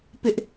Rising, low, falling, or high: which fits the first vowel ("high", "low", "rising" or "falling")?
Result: high